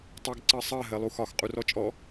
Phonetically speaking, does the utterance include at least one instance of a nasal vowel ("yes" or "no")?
no